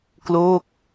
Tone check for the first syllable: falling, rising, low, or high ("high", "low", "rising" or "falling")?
falling